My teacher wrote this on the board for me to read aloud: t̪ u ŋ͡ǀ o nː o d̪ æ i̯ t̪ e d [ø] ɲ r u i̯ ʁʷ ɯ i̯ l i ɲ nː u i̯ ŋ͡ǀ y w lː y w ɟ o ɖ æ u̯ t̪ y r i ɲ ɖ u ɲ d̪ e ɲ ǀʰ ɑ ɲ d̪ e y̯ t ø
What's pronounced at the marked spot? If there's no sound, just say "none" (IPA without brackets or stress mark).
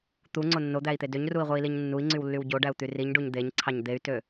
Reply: ø